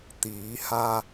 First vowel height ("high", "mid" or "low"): high